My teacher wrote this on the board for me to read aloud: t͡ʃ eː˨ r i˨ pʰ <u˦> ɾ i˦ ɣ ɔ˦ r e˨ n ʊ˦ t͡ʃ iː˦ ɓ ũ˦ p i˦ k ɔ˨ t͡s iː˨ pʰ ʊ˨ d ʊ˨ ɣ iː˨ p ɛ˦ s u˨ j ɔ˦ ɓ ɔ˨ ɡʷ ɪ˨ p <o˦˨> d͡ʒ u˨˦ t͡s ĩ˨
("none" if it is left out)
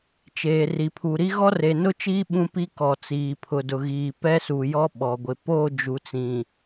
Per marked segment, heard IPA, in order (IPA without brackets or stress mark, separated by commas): u˨, o˦˨